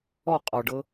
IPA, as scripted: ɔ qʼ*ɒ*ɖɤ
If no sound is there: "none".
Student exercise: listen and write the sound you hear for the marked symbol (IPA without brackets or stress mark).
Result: ɒ